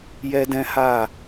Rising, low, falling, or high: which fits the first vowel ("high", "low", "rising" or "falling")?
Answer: high